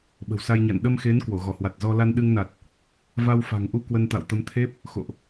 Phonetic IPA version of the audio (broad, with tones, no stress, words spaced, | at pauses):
ɓə̤˨˩wsa˧jɲa̰˧˨n ɗə˧mxe˨˦n kwo˧˩ɣɔ˧˩hwa˨˩t̚zɔ˧ la˧nɗɨ˧ŋna˨˩t̚ | va˧wfa̤˨˩ŋʔu˧ kwə˧nt̪a̰˧˨wt̪ə˨˦mt̪ʰe˦˥p̚ | xo̰˧˨ʔ